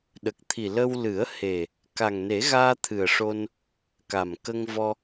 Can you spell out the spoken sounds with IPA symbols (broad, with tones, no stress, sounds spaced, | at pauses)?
ɗ ə˨˩ k̚ t̪ʰ i˨˩ l ə˧ w l ɨ˨˩˦ ə̯ h e˨˩ | k a˨˩ ŋ n e˨˩˦ ɣ aː˧ t̪ʰ ɨ˨˩ ə̯ ʂ o˧ n | k a˨˩ m k ə˧ ŋ v ɔ˧